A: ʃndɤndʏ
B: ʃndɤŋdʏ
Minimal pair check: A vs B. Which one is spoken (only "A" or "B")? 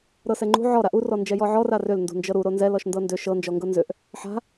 A